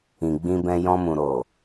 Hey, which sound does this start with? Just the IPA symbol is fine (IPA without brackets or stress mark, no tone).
ĩ